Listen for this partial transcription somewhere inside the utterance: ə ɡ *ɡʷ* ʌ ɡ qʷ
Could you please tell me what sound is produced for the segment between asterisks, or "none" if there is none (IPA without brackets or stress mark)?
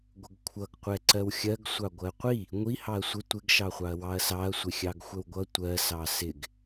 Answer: kʷʰ